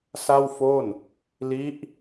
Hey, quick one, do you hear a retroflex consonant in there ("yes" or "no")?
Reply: no